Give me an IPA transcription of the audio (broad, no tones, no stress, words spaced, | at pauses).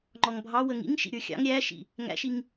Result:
ŋ͡ǃɔŋbʱɑ wəŋḭŋ ʃḭɾʲə˞xʲɑ̰ŋ ɾʲæʃḭ | ŋæ̰ʃiŋ